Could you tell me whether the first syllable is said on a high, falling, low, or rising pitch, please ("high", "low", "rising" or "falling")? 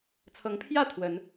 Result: rising